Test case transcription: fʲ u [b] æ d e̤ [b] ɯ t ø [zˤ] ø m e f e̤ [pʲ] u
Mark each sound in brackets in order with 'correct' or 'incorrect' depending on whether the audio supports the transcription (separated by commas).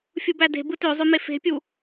correct, correct, correct, correct